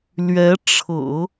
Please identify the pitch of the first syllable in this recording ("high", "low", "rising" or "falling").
rising